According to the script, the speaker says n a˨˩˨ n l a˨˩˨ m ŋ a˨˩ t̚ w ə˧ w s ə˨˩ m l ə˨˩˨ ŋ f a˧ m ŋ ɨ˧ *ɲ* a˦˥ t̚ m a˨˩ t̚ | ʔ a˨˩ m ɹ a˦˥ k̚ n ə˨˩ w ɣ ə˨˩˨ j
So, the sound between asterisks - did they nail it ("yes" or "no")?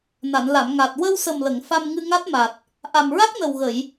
no